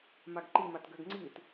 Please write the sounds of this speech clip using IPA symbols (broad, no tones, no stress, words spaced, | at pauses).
maɡǃimat ɡøɡŋ͡ǀit